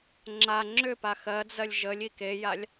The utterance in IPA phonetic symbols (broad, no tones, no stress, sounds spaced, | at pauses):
ŋ͡ǁ a ŋ͡ǁ ʏ p a x ɜ d͡z ɜ lʲ ʒ ə lʲ i k e j a lʲ